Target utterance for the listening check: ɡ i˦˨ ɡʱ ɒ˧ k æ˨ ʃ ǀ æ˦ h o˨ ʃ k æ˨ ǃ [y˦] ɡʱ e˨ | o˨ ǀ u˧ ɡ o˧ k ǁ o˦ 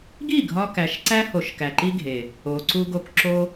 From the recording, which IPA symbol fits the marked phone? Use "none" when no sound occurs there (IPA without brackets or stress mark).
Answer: i˦